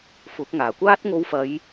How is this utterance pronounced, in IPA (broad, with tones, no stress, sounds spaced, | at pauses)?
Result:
f ʊ˨˥ k̚ ŋ aː˨˩ kʷ aː˥ t̚ ŋ o˧ w f ɐ˨˧ j